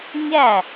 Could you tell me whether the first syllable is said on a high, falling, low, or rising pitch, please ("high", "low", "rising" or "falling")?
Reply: falling